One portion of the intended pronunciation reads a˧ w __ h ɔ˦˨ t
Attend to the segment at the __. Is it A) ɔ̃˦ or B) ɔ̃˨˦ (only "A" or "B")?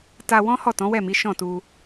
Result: A